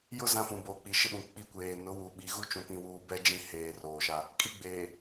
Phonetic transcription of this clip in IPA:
jʊ˦ zã˦fũ˨ boː˨k͡pi˨ʃɪ˦ɓũ˨ k͡pi˦kʷeː˨ nʊ˨˦wu˨ ɓi˨ɣu˦ t͡ʃũ˦pĩ˦wuː˦ bɛ˦d͡ʒĩ˦˨ heː˨ roː˨ʃa˦ | kʼi˦ɡ͡beː˨

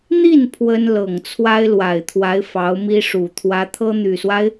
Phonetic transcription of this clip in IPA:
n̪i˥˩n pʰwə˥n lɤ˨˩ŋt͡sʰwa˥ɪ̯lwa˨˩ɪ̯t̪ʰwa˧˥ɪ̯ fɑ˧˥ʊ̯mi˥ʂu˨˩ t̪ʰwä˧˥t̪ʰɤ˥n̪y˨˩swa˦ɪ̯

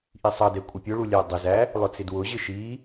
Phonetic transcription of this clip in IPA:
ʔisˤʌdɛ kʷʼəpʲʊɭu lʲædˤɪzæ | lˠʊt͡sɪdwʊʑɪ ʃi

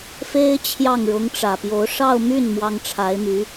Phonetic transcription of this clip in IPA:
fe˥ɪ̯ t͡ɕʰjɑ˥˩ŋɻʊ˧˥ŋʈ͡ʂä˨˩pjo˧˥ʊ̯ ʂɑ˥˧ʊ̯my˥˩n mwɑ˥ŋʈ͡ʂʰa˧˥ɪ̯my˧˥

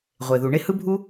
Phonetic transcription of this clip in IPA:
ʁʷe˩ðu˩ ɳe˥hɯ˥bʱu˥

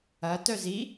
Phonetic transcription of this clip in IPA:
ɐ tœzi

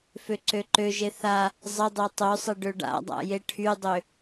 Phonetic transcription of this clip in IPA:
føǀøǃøʒe θa | zˤɪdˤʏ tˤøsˤɪ ɖøɖa̰dˤa̰ jeʈʰydˤø

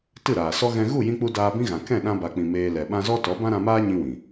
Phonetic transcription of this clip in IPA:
tɨ˦˨ɾaː˨sɔ˦ ɣɛ̃˧ ɣu˦˨jĩ˧k͡pu˧ daː˧bĩ˦ɣã˨ kɛ̃˦˨ɗã˧ba˨k͡pĩ˨ meː˧ lɛ˨ ɓã˧zɔ˦tɔ˨˦ bã˦ɾã˧maː˦ ɲĩ˦wĩ˨

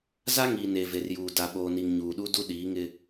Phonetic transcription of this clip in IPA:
za˦ŋiː˨ ne˨ve˨rjuː˨ da˨ɓoː˨ni˨ŋ ɲuː˨ɗu˦ du˦ɗiː˨˦ŋɪ˦

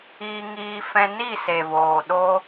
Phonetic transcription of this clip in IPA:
iː˧ŋiː˧fɛ̃˧ ni˦˨se˨voː˨ɗo˧

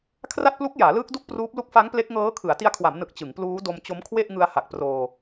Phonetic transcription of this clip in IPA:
kʰra˥˩t̚plu˦˥k̚ jaː˩˦lɯː˦˥k̚ du˥˩k̚pruː˦˥p̚ lu˦˥k̚fa˦˥ŋ ple˦˥k̚ŋɤː˦˥kʰɯ˩˦a̯ ti˦˥a̯kʰwa˩˦mnɯ˨˩k̚ t͡ɕɯ˩˦ŋpluː˦˥ do˧mt͡ɕo˦˥m kʰwe˥˩ʔŋɯ˧a̯ha˨˩k̚proː˧

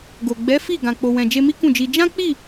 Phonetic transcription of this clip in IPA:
ɡo˨ ɡ͡bɛ˨˦fi˦˨ ɡã˨k͡po˨wɛ̃˨ d͡ʒe˧mi˦ kũ˦˨d͡ʒi˧ d͡ʒã˦k͡pi˦˨

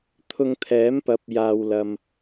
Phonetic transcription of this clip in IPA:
t̪ʰʊ˧ŋt̪ʰɛː˨˥mpɐ˨˥p̚ jaː˨wlɐ˨m

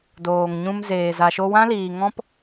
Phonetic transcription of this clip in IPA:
doː˨ŋɲũ˧mzeː˨ za˨ʃo˧wã˦liː˨ ŋɔ̃˦p

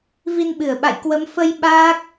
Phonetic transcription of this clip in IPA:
vi˧nɓɨ˧˩ə̯ɓa̰˧˨jkwə˨˦m fə˧j ɓaː˦˥k̚

